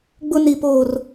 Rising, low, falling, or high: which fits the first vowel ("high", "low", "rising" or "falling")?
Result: high